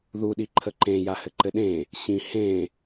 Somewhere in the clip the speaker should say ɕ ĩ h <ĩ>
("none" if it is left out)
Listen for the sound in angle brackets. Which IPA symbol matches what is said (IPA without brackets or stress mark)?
ẽ